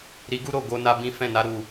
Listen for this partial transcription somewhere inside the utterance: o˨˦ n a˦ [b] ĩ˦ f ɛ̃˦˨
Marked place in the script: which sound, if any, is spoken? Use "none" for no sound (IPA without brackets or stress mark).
b